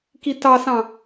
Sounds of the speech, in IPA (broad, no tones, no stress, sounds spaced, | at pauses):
k i t ɑ s ɑ̃